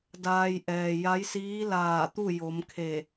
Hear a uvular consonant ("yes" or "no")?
no